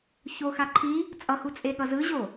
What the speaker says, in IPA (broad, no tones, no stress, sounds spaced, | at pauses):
ç o x a ǃʰ i | t͡sʼ ʌ h u t͡sʼ e ɠ ʌ z ɯ ʑ o